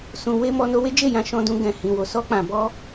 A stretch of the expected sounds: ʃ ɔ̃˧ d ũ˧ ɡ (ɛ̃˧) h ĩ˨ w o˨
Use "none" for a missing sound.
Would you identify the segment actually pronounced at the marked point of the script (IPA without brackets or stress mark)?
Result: ɛ̃˨